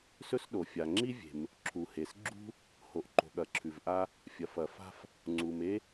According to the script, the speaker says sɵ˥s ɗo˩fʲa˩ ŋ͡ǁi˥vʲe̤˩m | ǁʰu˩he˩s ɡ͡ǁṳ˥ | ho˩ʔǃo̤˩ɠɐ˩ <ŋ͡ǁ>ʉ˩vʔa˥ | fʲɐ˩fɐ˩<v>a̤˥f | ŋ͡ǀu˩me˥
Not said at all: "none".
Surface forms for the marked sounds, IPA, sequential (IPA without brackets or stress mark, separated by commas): ǁʰ, f